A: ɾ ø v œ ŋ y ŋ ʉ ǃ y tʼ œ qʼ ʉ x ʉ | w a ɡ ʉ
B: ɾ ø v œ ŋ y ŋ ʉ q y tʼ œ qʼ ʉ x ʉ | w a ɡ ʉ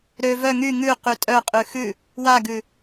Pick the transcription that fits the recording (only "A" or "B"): B